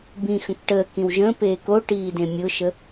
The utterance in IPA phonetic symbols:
b ĩ x ə̃ k ʈ əː k ĩ w ʒ ə̃ p eː k o ʈ iː d ẽ mʲ ʊ ʃ ə

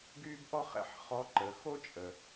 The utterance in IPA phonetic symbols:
ɡ yː˥ b ʔ ɔ˥ χ ɛ̰˩˧ ħ χ ɔ˧˥ ǃ ə˩˧ x o˥ t͡ʃʼ ə˩

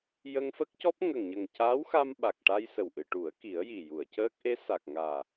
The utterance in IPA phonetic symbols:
j ə˧ ŋ f ə˦˥ k̚ c ɔ˦˥ p̚ ŋ ə˨˩ ŋ ɲ ə˨˩ ŋ c aː˧˥ w x a˧ m ɓ a˨˩ k̚ ʈ a˧ j s ə˨˩ w ʔ ɨ˨˩˨ ʈ u˨˩˦ ə̯ k i˨˩˦ ə̯ j i˨˩ j u˨˩˨ ə̯ c əː˦˥ k̚ ʔ e˧˥ s a˨˩ k̚ ŋ aː˨˩

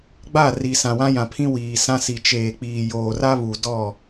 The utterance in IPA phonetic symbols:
ɡ͡b a˦˨ r i˨ s ã˨ w ã˦ j ã˨ pʰ ĩ˦ w iː˨ s ã˦ s i˨ t͡ʃ eː˨ k͡p iː˨ j oː˨ r a˦ β u˨ d ɔ˦˨

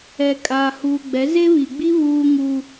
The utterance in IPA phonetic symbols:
ɛ˨ kʼ aː˨ h uː˨ ɡ͡b ɛ˨˦ z e˦ β i˨ ɡ͡b i˦ β uː˦ ŋ u˦

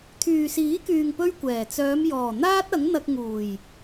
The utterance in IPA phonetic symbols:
t̪ʰ yː˨ s iː˨˥ k yː˨ ŋ p ɵ˥ ɥ kʷ ɛː˨˩ t͡s œː˨˧ m j ɔː˨˩ n̪ aː˥ t̚ ɐ˨˥ ŋ n̪ ɐ˧ k̚ ŋ uː˨˩ j

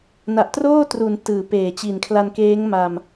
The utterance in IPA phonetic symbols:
n a˨˩ ʔ t r oː˥˩ t r u˩˦ n t ɯː˩˦ p eː˨˩ t͡ɕ i˨˩ n kʰ l a˧ n k eː˦˥ ŋ m a˧ m

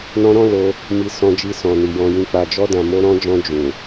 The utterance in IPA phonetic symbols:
n ɔ̃˧ ɾ ɔ̃˦ l o˧ | m i˨ s ɔ̃˧ d͡ʒ i˧ s ɔ̃˨ n i˨ j ɔ̃˨ j ĩ˨ k͡p a˨ d͡ʒ ɔ˧ d ã˨ m o˧ ɾ ɔ̃˧ d͡ʒ ɔ̃˧ d͡ʒ ũ˨

